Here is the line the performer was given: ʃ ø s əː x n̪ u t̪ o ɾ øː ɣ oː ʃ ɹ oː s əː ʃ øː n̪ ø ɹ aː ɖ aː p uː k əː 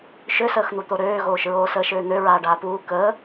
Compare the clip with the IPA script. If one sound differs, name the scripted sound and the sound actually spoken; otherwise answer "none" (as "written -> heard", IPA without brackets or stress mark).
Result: none